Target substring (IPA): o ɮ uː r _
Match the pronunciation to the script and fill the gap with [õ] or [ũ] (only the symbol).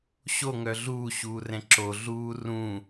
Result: ũ